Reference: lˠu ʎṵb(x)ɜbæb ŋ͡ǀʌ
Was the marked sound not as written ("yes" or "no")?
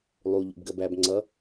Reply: yes